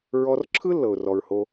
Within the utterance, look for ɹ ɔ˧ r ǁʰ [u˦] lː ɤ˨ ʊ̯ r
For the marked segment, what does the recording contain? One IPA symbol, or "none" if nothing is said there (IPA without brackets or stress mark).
ɯ˦